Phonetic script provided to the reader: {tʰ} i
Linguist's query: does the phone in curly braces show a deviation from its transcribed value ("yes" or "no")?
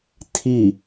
no